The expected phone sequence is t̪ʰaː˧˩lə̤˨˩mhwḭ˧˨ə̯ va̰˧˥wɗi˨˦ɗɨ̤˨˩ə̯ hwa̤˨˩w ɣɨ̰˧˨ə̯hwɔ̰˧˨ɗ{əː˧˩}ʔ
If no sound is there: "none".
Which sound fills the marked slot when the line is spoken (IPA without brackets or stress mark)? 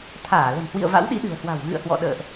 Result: ə̰ː˧˨